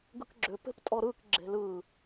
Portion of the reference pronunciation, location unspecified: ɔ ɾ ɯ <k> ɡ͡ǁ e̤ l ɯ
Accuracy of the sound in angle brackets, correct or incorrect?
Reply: correct